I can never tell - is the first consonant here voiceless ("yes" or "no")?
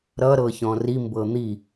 no